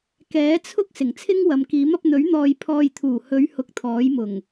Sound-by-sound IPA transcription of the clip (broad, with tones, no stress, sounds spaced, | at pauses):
k ɛː˨˥ t͡sʰ ʊ˥ k̚ s ɪ˨˩ ŋ t͡sʰ ɪ˥ ŋ w ɐ˨ m k iː˨˥ m ɐ˧ p̚ n̪ ɵ˨˥ ɥ n̪ ɔː˨ j pʰ ɔː˨ j t̪ʰ uː˨˩ h ɵ˨˧ ɥ h ʊ˧ k̚ t̪ʰ ɔː˨˥ j m ʊ˨˩ ŋ